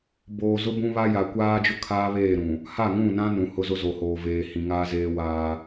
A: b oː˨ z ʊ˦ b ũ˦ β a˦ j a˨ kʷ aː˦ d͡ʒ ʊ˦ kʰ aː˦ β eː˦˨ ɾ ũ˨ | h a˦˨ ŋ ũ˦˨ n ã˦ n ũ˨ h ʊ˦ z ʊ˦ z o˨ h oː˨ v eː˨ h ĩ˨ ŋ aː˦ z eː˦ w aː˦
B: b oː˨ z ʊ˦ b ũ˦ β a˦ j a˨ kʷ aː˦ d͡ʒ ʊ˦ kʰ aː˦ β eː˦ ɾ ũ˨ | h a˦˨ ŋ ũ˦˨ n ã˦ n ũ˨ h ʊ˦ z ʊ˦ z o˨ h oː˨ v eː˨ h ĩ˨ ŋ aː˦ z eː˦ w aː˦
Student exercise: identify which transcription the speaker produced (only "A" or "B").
A